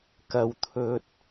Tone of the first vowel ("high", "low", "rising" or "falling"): low